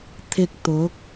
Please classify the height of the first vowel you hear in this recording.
high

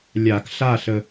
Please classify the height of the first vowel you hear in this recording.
low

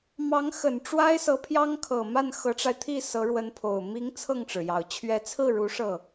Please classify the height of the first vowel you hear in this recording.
low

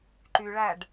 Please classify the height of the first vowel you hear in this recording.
high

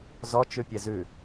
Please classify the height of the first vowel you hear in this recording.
mid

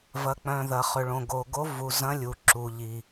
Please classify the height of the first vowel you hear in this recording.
low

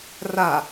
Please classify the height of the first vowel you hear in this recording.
low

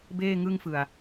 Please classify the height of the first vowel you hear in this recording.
mid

